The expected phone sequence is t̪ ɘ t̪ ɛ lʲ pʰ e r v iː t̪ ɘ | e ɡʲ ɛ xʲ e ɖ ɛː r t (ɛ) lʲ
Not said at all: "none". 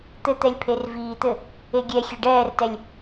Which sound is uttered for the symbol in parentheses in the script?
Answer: ɛ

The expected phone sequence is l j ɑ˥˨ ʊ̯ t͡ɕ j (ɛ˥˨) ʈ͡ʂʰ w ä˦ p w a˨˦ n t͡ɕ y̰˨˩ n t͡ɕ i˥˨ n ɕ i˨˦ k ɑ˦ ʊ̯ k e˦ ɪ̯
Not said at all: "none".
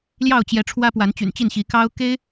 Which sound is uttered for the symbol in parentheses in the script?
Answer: ɛ˨˦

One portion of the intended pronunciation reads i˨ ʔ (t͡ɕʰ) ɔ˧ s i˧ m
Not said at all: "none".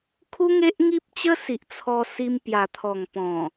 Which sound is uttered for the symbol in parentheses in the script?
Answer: t͡sʰ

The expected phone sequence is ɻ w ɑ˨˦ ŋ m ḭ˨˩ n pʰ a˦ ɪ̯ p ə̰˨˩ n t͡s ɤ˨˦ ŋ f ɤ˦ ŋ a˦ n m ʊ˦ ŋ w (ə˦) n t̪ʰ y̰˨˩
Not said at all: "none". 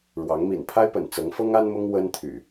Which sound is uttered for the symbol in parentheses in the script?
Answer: ə˦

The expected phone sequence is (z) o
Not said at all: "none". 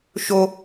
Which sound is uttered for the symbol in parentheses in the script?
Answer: ʃ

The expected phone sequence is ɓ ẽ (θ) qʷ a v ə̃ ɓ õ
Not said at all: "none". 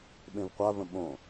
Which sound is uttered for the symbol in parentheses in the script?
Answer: v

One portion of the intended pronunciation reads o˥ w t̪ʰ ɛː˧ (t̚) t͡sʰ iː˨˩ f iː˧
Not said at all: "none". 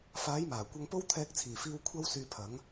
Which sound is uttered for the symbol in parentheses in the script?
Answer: k̚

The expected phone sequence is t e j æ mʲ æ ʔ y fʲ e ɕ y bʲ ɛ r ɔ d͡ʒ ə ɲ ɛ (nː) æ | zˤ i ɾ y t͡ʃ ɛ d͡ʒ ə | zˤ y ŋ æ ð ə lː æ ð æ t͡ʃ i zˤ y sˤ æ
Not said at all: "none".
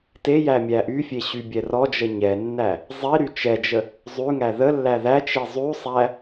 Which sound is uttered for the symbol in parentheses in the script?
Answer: nː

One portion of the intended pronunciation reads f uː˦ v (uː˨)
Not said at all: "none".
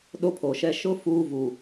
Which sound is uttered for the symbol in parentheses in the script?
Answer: u˨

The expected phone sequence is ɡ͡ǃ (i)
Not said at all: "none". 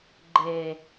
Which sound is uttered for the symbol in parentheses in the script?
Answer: e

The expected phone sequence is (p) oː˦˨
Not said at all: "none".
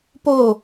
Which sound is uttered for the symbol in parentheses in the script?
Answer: p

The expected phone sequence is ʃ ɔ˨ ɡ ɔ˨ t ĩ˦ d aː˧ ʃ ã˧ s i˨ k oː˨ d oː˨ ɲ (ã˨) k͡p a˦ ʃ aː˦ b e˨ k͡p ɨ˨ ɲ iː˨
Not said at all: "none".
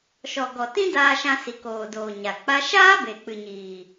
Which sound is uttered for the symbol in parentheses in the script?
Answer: a˨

